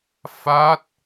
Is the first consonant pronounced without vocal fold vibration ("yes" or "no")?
yes